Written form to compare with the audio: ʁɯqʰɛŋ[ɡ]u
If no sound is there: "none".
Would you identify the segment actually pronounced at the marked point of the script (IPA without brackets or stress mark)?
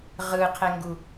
ɡ